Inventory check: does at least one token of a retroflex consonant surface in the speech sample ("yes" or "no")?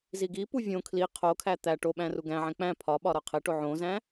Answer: yes